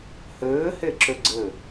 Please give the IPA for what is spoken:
hɘː heǁøɡ͡ǀɘ

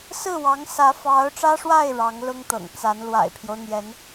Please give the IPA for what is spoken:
sɹ̩˥˩wɑ˧˥ŋ sä˧˥fɑ˧˥ʊ̯ʈ͡ʂä˥ʂwa˥˩ɪ̯ ɻɑ˧˥ŋlʊ˥ŋt̪ɤ̰˨˩ŋt͡sa˧˥n lwa̰˨˩ɪ̯pʰjo˦ʊ̯n̪jɛ˧˥n

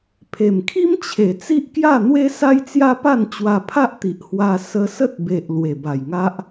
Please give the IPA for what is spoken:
pʰe˨˩mkʰi˦mt͡ɕʰe˨˩ t͡si˦ʔkja˥˧n̪we˦ sa˦jt͡sja˦pa˥˧n t͡ɕwa˧pʰa˦ʔt̪i˨ʔ hwa˧ sə˧sə˦t̚be˨ʔ lwe˨˩ba˨˩jŋa˦ʔ

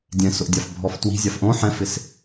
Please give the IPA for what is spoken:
dʲɛ̃sʊʔdʲaf bʱɔftwi̤ zʲafʔõ ħɛ̃fɪs

